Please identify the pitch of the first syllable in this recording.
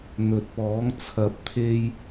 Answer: low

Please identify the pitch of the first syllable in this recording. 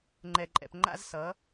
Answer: low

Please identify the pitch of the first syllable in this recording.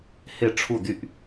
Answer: falling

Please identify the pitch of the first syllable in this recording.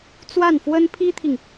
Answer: falling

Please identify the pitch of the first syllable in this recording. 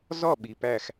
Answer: falling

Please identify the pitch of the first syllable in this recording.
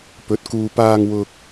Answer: rising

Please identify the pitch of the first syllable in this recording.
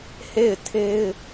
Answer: falling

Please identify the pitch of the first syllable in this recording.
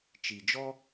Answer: low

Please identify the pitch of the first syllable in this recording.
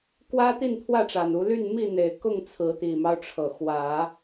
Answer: high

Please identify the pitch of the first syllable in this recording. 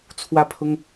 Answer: falling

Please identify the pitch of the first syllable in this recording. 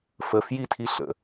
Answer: low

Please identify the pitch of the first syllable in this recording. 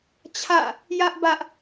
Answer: falling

